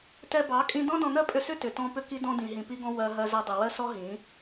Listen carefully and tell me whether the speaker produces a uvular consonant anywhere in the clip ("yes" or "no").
no